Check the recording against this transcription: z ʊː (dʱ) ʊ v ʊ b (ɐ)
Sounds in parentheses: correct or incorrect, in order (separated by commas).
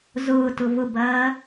incorrect, incorrect